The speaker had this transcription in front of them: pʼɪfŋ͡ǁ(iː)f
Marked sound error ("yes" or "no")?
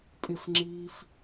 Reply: no